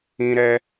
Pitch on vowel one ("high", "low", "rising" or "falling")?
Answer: high